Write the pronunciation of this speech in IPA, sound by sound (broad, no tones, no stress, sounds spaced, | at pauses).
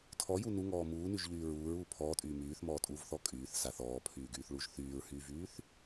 tʰ ɔ j u n u ŋ ɔː m uː n y ʒ ʎ yː ɹ uː ɹ uː pʰ ɔː tʼ yː m yː θ m ɔː tʼ uː v θ ɔ kʼ yː θ s a θ ɔː pʰ yː ɡ yː θ ɭ u ʒ θ yː ɹ h yː v yː θ